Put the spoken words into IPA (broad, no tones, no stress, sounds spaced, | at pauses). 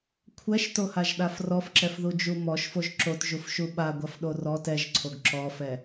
kʷʰ ɛ ʃ t o h a ʒ ɗ a f r ɔ f ǁ ɛ f ð u d͡ʒ u m ɔ ʃ f o ʒ ǁ o t ʒ u f ʃ u ɓ a ɡʷ a f ɗ o r ɔ t ɛ ʒ ǀʰ o ɡ ǁ ɔ f ɛ